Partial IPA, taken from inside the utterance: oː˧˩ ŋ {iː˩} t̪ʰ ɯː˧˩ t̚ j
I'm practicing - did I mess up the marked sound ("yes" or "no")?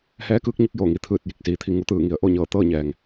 yes